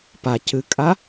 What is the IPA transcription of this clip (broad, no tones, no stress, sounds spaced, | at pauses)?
p a c ɨ kʼ a